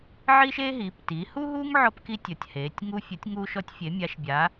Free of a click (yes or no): yes